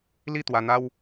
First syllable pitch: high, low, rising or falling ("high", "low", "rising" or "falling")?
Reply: falling